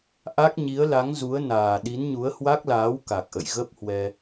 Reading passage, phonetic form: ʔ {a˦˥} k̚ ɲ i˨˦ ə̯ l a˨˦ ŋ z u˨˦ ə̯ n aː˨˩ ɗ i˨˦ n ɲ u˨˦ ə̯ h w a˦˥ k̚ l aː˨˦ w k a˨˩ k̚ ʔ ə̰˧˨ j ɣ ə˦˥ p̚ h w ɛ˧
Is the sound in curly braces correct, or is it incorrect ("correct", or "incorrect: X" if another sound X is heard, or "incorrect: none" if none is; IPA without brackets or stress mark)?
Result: correct